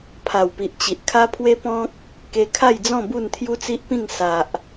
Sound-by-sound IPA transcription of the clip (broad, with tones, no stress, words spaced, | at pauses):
pʰa˨˩wpi˨ʔt͡ɕi˨ʔ kʰa˦pʰwe˦ pɔ̃˦k̚ | ke˧kʰa˥˧jd͡zɔ̃˥˧ bu˥˧nt̪ʰju˦t͡si˦ʔpĩ˥˧ŋ sa˨ʔ